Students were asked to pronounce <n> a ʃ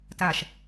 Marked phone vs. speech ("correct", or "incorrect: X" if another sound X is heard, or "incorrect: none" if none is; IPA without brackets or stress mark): incorrect: t